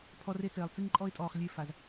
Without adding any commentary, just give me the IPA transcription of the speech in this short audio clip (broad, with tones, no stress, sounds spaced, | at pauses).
pʰ ɔ˦ r e˦ t͡s eː˨ lˠ t͡s i˦ ŋ ǃʼ ɔ˦ ɪ̯ tʼ ɔː˨ χ lʲ e˦˨ f a˨ z